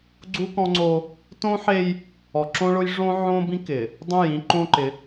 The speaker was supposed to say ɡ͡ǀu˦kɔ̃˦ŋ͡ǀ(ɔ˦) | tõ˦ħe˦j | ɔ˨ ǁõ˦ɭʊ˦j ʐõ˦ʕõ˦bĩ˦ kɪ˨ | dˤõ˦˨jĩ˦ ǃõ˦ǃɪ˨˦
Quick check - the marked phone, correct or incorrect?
incorrect